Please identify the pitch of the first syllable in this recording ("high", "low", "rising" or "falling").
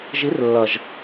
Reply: rising